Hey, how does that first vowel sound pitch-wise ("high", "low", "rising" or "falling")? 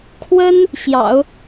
high